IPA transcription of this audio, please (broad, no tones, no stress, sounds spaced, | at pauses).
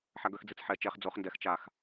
ħ a ɡ œ x d͡z i t͡s ħ ɛ t͡ʃ ɛ χ d͡z o χ n d ɛ x t͡ʃ a x